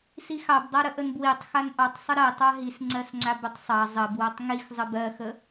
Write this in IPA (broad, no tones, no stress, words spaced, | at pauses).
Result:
sixɑbdˤaɾə ʔənbwitˤxan ʔɑtˤsˤə ɾɜtˤ ɑɦis ŋ͡ǀɜsŋ͡ǀabətˤsˤɑ zˤə bwɜtˤŋixzˤə bɜxə